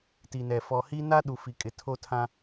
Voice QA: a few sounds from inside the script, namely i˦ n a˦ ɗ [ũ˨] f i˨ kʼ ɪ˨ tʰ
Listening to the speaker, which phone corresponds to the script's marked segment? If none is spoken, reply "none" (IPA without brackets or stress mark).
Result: u˨